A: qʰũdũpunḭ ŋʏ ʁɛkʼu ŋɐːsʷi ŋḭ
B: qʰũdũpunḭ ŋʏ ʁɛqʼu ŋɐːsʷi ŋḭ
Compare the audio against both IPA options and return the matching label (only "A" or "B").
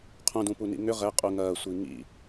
B